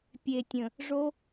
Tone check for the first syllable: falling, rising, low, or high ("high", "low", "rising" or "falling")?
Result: low